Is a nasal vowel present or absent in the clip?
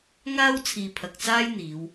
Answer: absent